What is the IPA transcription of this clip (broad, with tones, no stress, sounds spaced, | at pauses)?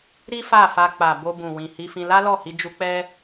ɾ i˦ f a˦˨ f a˧ k͡p a˨ b o˧ b ũ˨ w ĩ˨ h i˧ f ĩ˧ l a˦ l ɔ˦˨ h i˧ d͡ʒ u˧ k͡p ɛ˦